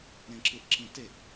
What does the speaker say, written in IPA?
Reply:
ɾ ẽ ǁ ɯ ʔ ǁ ĩ t e ʔ

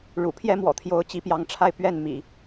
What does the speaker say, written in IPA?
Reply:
ɻ ṵ˨˩ pʰ j ɛ˥ m w ɔ̰˨˩ t̪ʰ j o˧˥ ʊ̯ t͡ɕ i˧˥ p j ɑ˧˥ ŋ ʈ͡ʂʰ a˥˧ ɪ̯ p ɥ ɛ˥˩ n m ḭ˨˩˦

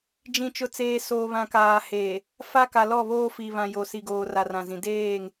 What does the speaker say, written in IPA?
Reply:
d͡ʒ ĩ˨ t͡ʃ ʊ˨ t͡s eː˨ s oː˨ β ã˨ k aː˨ h eː˨ | f a˦ k a˨ l ɔ˦˨ β oː˦ f i˨ β ã˨ j o˨ s i˨ ɡ oː˨ r a˨ r ã˨ z ĩ˨ d eː˦˨ ŋ

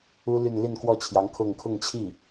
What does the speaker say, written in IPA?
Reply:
u˥ l y˥˧ n l i˥˧ n k w ɔ˥˩ t͡ɕʰ j ɑ˧˥ ŋ kʰ ʊ˥˧ ŋ kʰ ʊ˥˧ ŋ t͡ɕʰ i˥˩

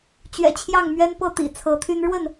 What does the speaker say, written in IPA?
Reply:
t͡ɕ ɥ ɛ̰˨˩ t͡ɕʰ j ɑ˥˨ ŋ m ɥ ɛ˦ n p ɤ˥˨ t̪ ḭ˨˩ t͡sʰ ɤ˨˦ t̪ʰ y˦ n ɻ w ə˥˨ n

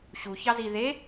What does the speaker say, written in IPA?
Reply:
ɕ u ç ɑ z i ð e

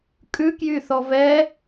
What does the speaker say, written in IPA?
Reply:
kʼ ʉ k j y θ ɔ v ɛ

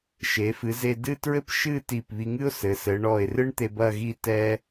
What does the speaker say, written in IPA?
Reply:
ʃ e˩˧ f ɨ˩˧ z e˧ d ɨ˥˧ t ɹ ɘ˥ p ʃ ɨ˥˧ t i˧˩ p β i˧ ŋ ɨ˥ ʊ̯ s ɘ˩˧ s ɘ˩˧ ɳ ɔ˧˩ ɪ̯ r ɨ˥ ɳ t̪ e˧ b ɐ˥˧ ɣ i˥˧ t ɛ˧

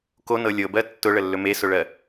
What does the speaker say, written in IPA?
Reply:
k o n ɤ lʲ ɤ b ɜ tː ʊ ɭ ə lː ɵ m e s ʊ ɭ ɜ

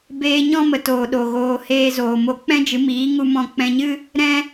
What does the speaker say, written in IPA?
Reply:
b eː˧ ɲ ɔ̃˦ m ə˨ t oː˨ ɗ o˨ ɣ oː˧ h eː˧ z oː˨ m o˧ k͡p ɛ̃˦ d͡ʒ ɨ˨˦ m iː˨˦ ŋ u˧ m ɔ̃˧ k͡p ɛ̃˧ ɲ ɨ˦ | ɾ ɛ̃˦

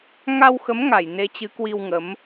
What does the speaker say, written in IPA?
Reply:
ŋ a˧ w x ə˨˦ m ŋ a˧˩ j n e˨˦ t͡ɕ ɨ˨˦ k w i˧ w ŋ ə˨˦ m

